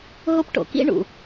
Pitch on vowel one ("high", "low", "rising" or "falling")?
high